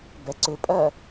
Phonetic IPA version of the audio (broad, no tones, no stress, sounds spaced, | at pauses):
b ɛ ǀ ʏ pʼ ɜ